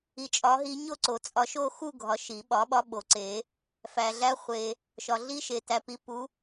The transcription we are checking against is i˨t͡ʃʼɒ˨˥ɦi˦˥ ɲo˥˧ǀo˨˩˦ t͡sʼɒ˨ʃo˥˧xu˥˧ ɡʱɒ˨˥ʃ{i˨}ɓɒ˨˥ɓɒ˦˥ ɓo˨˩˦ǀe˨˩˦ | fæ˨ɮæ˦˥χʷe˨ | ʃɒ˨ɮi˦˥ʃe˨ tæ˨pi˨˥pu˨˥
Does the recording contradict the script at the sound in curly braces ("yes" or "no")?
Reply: yes